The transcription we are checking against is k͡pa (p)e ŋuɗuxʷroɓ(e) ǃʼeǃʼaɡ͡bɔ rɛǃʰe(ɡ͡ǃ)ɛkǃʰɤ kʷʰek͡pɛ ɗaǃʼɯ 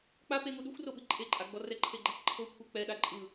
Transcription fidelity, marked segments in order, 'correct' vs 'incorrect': correct, incorrect, correct

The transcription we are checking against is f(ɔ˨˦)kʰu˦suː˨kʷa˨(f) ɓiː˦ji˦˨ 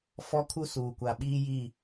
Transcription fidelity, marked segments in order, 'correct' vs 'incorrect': incorrect, incorrect

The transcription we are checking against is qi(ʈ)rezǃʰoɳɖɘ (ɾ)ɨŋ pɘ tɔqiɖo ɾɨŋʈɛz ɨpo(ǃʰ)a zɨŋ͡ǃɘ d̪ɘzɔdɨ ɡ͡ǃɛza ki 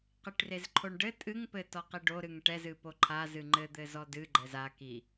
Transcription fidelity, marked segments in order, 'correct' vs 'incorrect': correct, incorrect, correct

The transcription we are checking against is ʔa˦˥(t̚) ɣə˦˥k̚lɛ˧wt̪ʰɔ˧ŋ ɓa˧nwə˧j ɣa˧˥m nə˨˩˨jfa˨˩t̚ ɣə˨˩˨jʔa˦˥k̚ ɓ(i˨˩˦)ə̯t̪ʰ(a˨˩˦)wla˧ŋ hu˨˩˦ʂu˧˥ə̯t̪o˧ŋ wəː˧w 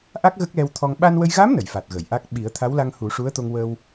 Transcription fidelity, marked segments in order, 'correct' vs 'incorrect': incorrect, correct, incorrect

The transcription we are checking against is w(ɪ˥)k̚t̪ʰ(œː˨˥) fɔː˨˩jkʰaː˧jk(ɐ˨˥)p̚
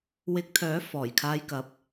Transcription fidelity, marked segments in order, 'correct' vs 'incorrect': incorrect, correct, correct

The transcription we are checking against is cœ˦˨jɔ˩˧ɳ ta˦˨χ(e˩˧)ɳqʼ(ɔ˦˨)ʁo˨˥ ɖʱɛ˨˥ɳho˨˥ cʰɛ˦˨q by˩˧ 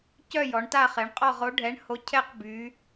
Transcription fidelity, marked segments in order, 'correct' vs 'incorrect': correct, correct

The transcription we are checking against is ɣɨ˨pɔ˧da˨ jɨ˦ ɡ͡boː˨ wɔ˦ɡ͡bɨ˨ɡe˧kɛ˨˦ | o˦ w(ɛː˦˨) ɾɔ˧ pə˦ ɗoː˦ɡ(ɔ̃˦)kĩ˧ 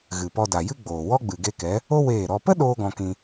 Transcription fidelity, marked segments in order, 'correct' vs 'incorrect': incorrect, incorrect

